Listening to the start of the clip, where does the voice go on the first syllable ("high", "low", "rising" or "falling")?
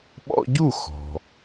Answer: high